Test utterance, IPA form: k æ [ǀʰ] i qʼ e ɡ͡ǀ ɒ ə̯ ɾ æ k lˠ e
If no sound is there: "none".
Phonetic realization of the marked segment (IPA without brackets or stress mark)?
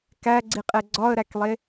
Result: ɡ͡ǀ